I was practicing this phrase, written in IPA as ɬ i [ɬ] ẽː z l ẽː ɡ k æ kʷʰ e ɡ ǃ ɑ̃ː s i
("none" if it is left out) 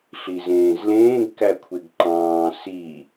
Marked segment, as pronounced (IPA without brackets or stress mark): z